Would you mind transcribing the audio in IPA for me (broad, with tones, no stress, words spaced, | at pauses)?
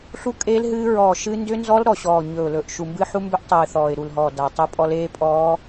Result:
ɬu˦˥kʼeː˦˥l ɦɨː˦˥ ɹɔː˨˩ ʃɨ˦˥ ndʏ˦˥nzɔ˦˥l ɾɔ˨˩ɕɔː˨˩ ɲɵ˨˩ʊ̯lɵ˨˩ʔ ʃu˨˩mbɨ˦˥ħu˦˥ mbʏ˦˥ʔtˤɨː˨˩ θɔː˨˩ɪ̯ ɾu˨˩lɦɔː˨˩ da˨˩tˤɨ˦˥pʼɔ˦˥l eː˦˥pʼɔː˦˥